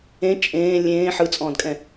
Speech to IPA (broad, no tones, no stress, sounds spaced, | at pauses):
ẽ t͡ʃʼ ẽː lʲ ẽː ħ ɯ t͡sʼ ɔ̃ː d kʼ ɛ̃